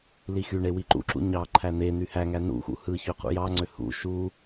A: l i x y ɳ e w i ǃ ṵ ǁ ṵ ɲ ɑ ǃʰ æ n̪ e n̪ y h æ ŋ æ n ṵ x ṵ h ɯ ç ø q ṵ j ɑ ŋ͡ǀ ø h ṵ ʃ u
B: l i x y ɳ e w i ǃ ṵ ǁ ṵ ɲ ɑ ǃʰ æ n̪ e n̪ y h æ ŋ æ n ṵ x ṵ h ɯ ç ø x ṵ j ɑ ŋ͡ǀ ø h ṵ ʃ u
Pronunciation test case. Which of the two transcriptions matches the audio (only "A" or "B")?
A